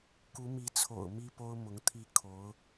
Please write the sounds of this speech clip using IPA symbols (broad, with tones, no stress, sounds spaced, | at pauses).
k u˧˥ m i˧˥ t͡sʰ o̰˨˩ ʊ̯ m i˥ p o˥ ʊ̯ m ʊ˧˥ ŋ t̪ʰ i˥˩ kʰ o˧˥ ʊ̯